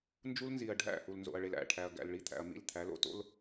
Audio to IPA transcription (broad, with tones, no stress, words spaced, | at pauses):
nd͡ʒu˦l nzi˨ɐ̯ɖʱæ̰˦˨hu˨l nzo̰˨ɐ̯ɭe˨læ̰˦˨ʈʰæ˨ɐ̯ ɡæ̰˨lɭi˨ t̪ʰæ̰˨ɐ̯mḭ˦˨lt̪ʰæ˨˦l o̰˦ to̰˦l